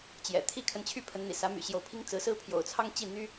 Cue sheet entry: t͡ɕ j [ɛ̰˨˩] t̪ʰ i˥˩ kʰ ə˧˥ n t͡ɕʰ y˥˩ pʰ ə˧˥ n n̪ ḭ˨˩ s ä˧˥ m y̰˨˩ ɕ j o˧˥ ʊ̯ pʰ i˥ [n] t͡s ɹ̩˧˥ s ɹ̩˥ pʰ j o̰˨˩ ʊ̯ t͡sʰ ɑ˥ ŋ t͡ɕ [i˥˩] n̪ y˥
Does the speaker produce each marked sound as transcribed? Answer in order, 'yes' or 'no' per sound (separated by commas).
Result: yes, no, yes